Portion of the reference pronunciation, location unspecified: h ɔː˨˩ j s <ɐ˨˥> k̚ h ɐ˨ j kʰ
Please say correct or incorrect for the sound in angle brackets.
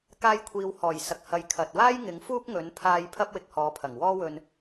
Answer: incorrect